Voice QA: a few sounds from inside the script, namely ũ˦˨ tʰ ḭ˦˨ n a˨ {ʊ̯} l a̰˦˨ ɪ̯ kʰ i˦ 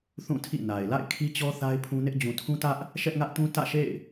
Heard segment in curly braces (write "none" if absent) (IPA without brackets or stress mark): ɪ̯